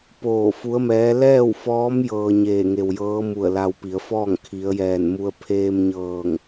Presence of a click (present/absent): absent